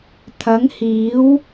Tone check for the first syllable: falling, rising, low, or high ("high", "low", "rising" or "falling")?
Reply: rising